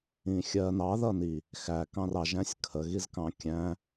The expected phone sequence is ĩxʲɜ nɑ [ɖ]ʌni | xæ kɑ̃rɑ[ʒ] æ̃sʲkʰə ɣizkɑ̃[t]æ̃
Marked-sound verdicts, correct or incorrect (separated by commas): incorrect, correct, incorrect